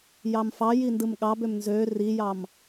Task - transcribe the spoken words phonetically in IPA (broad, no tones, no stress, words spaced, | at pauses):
jɑmfɑji ndɯmɠɑbøm nzø rijɑm